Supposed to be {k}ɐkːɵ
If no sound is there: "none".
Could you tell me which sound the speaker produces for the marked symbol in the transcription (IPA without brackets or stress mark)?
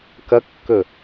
k